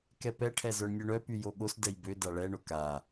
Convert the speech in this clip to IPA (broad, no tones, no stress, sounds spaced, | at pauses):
k ɛ p ɛ ʈʰ ɛ z œ ɳ nʲ o ɳ œ p y j o ɠ o s d ɛ j b ø d a ɭ ɛ ɳ o k a